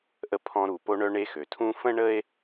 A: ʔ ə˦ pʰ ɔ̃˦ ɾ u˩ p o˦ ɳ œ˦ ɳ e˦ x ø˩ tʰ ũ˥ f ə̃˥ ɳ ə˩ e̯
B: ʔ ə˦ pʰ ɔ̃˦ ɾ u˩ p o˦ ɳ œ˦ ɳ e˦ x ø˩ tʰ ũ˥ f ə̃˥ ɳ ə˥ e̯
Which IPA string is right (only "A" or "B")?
B